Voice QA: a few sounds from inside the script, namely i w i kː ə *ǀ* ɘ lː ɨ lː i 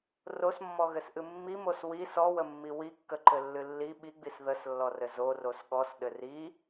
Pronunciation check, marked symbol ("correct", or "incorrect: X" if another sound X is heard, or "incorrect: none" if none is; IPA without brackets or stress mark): incorrect: ǃ